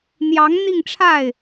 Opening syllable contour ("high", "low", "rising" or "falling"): rising